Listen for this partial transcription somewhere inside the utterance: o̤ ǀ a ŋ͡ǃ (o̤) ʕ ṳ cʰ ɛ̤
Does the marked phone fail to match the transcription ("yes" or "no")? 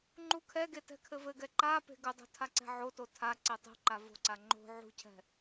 no